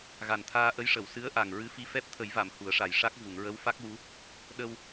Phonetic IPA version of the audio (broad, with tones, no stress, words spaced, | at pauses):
ɣa˨˩nt̪ʰaː˧ʔə˧˥jʂə˨˩˨w sɨ˧˥ə̯ʔa˨˩ŋ ɹɨ˧˥fi˧˥fɛ˦˥p̚ t̪ʰə˨˩˦jva˨˩˨m hu˨˩˦ə̯ʂa˨˩j ʂa˦˥k̚ vu˨˩˨ŋɹə˧˥wfa˦˥k̚wu˧˥ | ɗə˧w